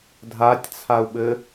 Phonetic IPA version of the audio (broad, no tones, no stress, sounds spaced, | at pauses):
dʱ a tʲ t͡sʰ a u̯ ɓ ɘ